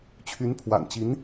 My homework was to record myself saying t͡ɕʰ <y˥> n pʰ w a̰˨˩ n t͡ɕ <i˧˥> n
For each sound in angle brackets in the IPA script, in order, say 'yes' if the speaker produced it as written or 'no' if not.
no, yes

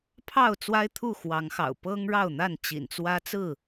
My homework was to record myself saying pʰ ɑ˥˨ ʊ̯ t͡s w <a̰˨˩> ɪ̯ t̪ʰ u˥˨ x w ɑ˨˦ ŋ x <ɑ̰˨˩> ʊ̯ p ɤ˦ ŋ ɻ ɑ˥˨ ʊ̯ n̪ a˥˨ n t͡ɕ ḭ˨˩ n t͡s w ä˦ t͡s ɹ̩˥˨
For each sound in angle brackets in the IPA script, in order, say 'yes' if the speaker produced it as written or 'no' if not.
no, yes

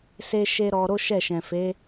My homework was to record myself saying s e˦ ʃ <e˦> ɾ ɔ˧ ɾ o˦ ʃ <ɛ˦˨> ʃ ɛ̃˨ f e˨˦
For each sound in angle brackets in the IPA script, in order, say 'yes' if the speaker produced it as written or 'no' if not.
yes, yes

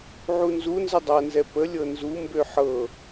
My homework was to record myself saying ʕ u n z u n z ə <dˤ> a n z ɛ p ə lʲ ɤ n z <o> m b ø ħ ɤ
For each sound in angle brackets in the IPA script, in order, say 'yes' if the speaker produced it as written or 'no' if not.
yes, no

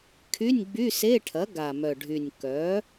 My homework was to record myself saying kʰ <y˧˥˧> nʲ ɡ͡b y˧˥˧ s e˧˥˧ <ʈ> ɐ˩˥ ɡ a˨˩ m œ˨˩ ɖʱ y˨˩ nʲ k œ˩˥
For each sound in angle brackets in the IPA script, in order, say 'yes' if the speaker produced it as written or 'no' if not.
yes, no

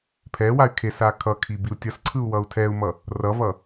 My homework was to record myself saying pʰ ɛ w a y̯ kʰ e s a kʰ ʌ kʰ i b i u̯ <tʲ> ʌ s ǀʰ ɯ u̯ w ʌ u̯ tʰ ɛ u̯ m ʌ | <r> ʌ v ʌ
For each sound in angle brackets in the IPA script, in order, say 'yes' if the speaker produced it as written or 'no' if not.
yes, yes

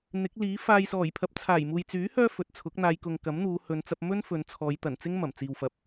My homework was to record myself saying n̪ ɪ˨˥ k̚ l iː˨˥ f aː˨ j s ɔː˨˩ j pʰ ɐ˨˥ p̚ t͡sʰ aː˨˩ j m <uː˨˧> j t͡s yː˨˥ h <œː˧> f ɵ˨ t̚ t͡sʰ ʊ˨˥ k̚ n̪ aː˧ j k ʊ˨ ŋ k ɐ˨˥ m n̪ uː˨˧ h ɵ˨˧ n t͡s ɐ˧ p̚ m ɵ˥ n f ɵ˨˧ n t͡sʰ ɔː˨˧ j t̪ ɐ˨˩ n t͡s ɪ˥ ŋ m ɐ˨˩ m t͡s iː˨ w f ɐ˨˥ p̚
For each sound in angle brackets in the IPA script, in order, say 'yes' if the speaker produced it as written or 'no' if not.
no, yes

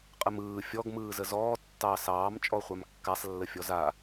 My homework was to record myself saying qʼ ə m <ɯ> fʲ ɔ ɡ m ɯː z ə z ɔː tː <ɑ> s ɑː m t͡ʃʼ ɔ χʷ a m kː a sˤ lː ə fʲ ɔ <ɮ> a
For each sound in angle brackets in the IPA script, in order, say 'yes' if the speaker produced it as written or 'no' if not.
no, yes, no

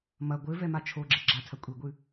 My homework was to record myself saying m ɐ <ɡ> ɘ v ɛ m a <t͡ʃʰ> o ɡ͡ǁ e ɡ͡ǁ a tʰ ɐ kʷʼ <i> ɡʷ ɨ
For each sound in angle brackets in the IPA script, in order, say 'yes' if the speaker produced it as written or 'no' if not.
no, yes, yes

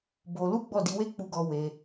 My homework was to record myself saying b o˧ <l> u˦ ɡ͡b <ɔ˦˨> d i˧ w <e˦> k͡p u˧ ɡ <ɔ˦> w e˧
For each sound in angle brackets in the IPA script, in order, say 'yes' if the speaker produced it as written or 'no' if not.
yes, yes, yes, no

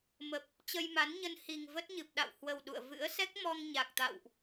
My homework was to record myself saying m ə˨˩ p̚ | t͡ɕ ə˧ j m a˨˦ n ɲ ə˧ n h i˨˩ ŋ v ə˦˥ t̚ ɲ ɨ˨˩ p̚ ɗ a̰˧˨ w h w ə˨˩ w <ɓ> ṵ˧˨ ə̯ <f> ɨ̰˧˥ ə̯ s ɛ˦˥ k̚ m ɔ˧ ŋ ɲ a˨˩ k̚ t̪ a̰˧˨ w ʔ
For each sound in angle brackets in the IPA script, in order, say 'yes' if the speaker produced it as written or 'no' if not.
no, no

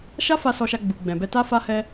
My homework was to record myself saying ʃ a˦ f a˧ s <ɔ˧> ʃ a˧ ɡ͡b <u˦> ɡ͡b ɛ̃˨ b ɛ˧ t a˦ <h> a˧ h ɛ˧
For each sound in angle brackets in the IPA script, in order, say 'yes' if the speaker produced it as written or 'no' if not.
yes, no, no

